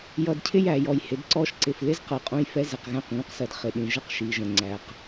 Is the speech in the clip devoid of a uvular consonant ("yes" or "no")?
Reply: no